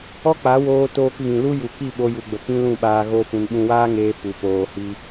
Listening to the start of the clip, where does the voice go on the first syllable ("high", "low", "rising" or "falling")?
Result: high